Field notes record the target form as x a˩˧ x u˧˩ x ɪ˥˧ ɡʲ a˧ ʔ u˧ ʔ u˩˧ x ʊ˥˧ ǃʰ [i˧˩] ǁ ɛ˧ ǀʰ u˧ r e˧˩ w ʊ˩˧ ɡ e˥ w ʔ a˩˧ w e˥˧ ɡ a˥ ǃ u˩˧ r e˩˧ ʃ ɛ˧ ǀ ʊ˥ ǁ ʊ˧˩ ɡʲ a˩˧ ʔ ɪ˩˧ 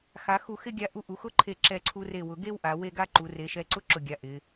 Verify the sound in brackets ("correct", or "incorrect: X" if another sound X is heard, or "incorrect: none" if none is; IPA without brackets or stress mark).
incorrect: e˧˩